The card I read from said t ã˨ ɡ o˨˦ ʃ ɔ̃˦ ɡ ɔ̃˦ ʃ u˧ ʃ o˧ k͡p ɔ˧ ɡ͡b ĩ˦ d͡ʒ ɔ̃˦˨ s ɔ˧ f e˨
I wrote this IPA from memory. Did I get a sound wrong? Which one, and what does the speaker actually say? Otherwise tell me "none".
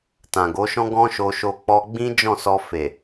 u˧ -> o˧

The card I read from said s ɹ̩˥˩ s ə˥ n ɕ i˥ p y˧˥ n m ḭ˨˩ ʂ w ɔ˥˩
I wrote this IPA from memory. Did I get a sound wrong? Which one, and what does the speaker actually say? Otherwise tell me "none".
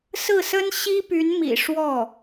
none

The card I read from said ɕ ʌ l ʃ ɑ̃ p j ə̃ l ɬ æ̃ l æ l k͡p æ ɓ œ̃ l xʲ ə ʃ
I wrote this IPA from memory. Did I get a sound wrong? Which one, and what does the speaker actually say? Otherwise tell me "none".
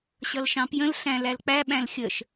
œ̃ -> æ̃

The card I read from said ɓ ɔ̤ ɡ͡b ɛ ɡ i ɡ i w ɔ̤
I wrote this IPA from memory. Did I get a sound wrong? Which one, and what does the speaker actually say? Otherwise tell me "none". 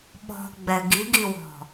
none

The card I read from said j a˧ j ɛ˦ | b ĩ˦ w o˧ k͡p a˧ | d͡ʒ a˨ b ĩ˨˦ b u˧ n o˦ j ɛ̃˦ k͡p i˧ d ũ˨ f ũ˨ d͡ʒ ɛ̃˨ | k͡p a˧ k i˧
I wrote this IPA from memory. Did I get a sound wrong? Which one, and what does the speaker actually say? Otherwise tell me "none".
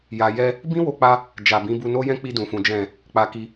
none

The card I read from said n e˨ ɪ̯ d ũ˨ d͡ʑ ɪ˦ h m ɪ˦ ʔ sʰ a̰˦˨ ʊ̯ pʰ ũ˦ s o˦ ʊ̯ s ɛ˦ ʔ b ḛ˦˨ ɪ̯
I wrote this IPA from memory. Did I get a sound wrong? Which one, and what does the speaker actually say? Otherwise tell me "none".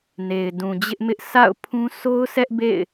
h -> ʔ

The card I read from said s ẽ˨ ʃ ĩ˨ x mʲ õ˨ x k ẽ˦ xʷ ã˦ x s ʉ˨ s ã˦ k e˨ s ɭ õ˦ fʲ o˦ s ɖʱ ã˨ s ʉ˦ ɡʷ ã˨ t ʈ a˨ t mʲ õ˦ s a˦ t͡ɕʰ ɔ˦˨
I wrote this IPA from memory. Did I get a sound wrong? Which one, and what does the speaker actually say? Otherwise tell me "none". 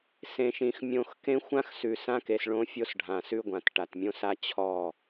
none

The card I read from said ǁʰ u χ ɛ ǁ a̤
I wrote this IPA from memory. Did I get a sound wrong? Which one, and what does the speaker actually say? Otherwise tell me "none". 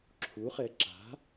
none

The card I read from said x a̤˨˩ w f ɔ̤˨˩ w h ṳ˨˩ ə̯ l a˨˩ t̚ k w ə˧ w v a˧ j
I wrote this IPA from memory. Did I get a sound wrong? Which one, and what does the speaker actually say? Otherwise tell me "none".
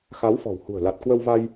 a̤˨˩ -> a˨˦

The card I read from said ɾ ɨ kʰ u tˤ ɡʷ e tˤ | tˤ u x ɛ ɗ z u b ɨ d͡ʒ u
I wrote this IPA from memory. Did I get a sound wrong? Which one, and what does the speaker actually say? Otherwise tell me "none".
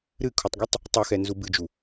ɗ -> n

